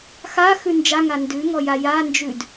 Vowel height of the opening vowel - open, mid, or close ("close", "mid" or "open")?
open